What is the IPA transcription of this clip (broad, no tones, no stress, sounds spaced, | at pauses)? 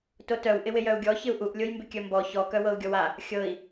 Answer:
t o t œ w ʔ ɪ w ɪ j œ u̯ ɡʲ ɔ ç ɪ u̯ ʔ u ʔ lʲ o j m b ɪ kʲ œ m b ɔ ç ɔ k œ w ɤ u̯ ɡʲ ɔ w a | xʲ ɤ i̯